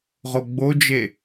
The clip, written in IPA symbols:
ʁoɡ͡bod͡ʒe

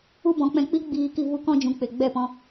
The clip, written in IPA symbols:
u˦ bɔ̃˨˦k͡pɛ̃˧k͡pi˦ ɡ͡biː˧ki˧ vu˧kɔ̃˧d͡ʒũ˨k͡pe˨ ɡ͡bɛ˦˨pɔ̃˧

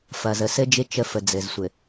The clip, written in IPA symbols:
fɐ˨zə˨sɘ˦d͡ʒɪ˦ t͡ʃə˦fə˨ d͡zɘ˨zsʷɘ˨

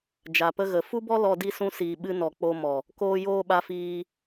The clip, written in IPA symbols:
d͡ʒa˨pə˧ɣə˨ fu˦bɔ˦lɔ˧ di˦ sũ˧siː˨ɓɨ˧ nɔ˨ k͡po˧mɔ˨ | koː˧joː˧ ɓa˧fiː˧

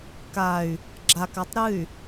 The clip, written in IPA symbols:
kay̯ | ɡ͡ǁakatˤ ɾɨy̯

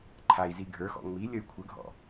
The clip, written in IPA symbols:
ǃʰai̯zi ɡʱə˞xɔ̰ ŋ͡mi lʲəy̯kʷʰəɡʱɔ̰

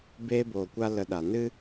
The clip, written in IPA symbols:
beː˦boː˨kʷa˦ lə˧ɗa˨ nɨ˦

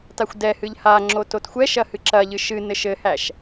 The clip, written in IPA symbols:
taxʷdɛhɨʎ ha ŋ͡ǁototxʷɛʃɐ hɨǁɐʎɨ ʃɨnɘ ʃɘhæʃ

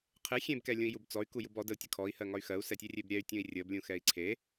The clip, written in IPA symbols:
qʰe xʲẽbkɛlʲũi̯ jubt͡sɔy̯ku jubɔ dəu̯tʲə kʰɔi̯hɜŋɒy̯ xɜu̯sɛtʲerʲeb ɾʲɛy̯tʲũi̯ rʲəblʲũxɛi̯ ǀʰe

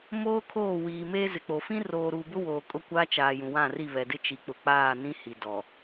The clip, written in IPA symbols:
moː˦ kʰoː˦˨wiː˨meː˦ zɪ˨k͡po˨ fĩ˦roː˨ɾuː˨ bʊ˦woː˨kʼʊ˦˨ kʷa˦ t͡ʃaː˨jũ˨wã˦˨ri˦˨ βɛ˨dɪ˦ t͡ʃi˨k͡pʊ˨k͡paː˦˨nĩ˦ hi˨ dɔ˨

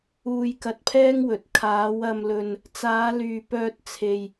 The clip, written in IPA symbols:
uː˧jkɐ˧t̚pʰɛː˥ŋwɵ˨˥t̚ kʰaː˨˧wɐ˧mlɵ˧n | t͡saː˨˧lyː˨pœː˧t̚ t͡sʰe˧j

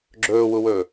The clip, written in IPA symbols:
ɡ͡ǁɵːwuwɵː

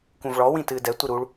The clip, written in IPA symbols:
kũvɭɔ wĩtɨːdɛ tʷɨɾuɭ

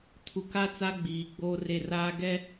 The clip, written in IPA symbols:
tʰu˨ka˦ t͡sa˦ɡ͡biː˨ɡ͡boː˦re˦˨ raː˦ɡɛ˦

